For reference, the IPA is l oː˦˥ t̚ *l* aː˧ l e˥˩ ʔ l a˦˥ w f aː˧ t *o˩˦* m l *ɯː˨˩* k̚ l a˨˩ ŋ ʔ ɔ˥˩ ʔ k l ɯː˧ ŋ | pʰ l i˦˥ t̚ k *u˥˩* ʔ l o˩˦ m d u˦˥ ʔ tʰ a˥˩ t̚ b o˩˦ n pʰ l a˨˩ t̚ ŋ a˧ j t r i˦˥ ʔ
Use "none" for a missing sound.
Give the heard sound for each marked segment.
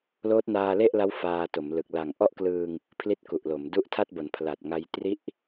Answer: n, o˩˦, ɯ˨˩, u˨˩

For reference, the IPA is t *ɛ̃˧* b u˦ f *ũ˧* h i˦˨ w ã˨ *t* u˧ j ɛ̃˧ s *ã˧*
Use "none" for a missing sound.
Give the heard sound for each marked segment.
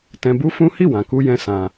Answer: ɛ̃˧, ũ˦, k, ã˧

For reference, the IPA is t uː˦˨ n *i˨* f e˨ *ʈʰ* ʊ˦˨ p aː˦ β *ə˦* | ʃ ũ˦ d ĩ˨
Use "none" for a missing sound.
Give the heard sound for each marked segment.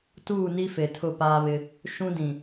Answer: i˦, tʰ, ɪ˦

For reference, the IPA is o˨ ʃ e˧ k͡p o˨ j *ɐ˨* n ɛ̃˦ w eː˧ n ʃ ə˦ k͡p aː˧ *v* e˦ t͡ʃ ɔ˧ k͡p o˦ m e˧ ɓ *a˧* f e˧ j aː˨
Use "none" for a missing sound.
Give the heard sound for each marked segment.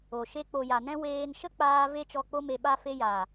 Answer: a˨, v, a˧

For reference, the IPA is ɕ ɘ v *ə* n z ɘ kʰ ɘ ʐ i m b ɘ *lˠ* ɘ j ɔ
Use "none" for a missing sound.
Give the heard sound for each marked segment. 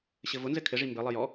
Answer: ʊ, lˠ

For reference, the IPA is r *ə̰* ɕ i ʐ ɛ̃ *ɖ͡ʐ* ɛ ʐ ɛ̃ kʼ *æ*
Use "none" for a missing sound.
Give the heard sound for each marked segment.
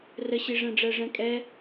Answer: ə, ɖ͡ʐ, ɛ

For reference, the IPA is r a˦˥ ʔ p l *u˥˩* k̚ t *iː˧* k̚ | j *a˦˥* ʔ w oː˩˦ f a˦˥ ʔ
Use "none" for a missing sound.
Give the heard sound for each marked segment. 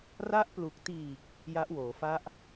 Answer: u˨˩, iː˨˩, a˦˥

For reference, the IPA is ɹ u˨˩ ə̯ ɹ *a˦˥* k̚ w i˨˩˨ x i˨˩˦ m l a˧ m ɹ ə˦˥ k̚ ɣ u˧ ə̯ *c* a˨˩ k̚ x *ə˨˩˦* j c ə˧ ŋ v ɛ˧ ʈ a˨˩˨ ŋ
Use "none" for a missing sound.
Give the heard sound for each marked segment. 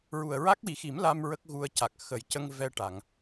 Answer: a˦˥, c, ə˨˩˦

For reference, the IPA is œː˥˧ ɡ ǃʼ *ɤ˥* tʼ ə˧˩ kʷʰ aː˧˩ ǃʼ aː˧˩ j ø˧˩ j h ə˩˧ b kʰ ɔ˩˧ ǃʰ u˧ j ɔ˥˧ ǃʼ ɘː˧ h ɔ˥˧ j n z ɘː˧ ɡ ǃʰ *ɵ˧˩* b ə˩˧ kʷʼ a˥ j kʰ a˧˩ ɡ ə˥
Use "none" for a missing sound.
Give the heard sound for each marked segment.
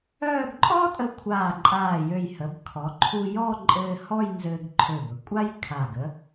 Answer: ɔ˥, ø˧˩

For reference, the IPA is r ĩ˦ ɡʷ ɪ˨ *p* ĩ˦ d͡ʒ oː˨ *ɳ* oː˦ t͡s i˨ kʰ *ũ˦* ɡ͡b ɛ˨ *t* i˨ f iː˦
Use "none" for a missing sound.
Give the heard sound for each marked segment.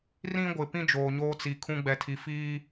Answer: p, ɲ, ũ˦, tʰ

